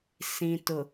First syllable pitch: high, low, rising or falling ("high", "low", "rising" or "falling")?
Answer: low